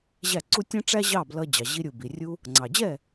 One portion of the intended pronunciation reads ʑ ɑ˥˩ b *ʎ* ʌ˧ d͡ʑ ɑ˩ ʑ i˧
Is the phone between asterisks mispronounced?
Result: yes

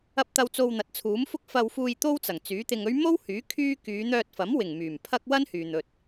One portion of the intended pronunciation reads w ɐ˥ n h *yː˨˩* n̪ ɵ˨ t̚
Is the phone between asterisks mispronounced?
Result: yes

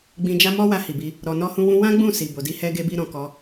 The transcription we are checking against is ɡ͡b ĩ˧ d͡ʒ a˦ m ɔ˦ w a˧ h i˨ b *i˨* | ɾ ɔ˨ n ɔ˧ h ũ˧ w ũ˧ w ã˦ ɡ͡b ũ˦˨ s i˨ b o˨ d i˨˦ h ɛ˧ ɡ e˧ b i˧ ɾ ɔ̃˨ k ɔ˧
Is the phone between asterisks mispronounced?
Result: yes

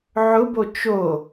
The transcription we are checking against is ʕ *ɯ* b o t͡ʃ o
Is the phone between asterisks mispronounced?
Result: yes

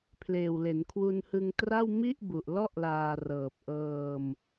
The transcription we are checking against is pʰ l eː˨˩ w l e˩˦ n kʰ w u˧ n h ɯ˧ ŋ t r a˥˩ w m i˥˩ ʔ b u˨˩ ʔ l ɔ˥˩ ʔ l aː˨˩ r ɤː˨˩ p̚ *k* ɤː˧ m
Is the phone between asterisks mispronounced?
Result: yes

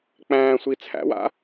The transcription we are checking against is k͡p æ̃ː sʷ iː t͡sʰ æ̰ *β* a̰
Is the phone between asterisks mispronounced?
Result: yes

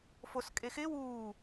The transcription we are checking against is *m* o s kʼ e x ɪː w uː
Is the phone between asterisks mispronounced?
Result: yes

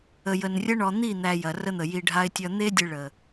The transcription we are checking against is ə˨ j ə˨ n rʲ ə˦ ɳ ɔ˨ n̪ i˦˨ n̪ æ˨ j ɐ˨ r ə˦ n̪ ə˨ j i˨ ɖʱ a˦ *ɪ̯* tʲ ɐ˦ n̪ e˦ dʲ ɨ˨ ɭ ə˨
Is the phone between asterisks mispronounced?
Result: no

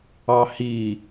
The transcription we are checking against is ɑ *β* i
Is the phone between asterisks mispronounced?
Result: yes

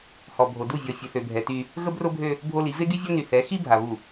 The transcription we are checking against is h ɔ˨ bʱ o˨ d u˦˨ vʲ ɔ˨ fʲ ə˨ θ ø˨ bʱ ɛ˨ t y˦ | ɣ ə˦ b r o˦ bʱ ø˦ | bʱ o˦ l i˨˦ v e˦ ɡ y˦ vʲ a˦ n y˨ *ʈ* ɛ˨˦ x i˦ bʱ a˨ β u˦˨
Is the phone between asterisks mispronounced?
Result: yes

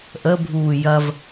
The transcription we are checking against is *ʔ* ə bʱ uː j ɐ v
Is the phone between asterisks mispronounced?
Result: no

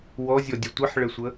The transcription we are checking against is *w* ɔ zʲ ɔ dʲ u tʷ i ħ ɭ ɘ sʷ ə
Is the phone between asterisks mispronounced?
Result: no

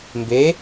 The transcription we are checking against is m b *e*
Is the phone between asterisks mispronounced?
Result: no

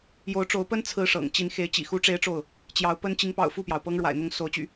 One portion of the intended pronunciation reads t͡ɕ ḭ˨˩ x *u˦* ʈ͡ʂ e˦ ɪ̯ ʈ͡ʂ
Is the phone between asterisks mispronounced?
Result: no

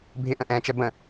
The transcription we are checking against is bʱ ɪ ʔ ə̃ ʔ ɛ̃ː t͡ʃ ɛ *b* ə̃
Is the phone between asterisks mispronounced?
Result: no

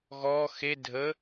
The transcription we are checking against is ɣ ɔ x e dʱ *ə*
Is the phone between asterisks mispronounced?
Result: no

